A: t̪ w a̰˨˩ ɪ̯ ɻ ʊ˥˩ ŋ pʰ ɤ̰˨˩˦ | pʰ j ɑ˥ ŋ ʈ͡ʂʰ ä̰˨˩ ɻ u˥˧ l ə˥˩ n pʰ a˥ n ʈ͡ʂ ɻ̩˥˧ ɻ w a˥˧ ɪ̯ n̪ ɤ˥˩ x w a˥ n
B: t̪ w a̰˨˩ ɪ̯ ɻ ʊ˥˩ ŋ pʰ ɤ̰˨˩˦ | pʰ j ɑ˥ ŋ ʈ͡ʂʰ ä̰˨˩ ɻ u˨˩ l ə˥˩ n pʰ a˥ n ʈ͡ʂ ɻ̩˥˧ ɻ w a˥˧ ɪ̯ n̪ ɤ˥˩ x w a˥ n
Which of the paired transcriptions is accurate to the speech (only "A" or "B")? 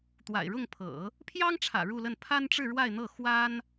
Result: A